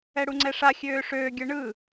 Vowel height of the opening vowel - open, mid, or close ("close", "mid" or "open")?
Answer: mid